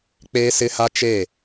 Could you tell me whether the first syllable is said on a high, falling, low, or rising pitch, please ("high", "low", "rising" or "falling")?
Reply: high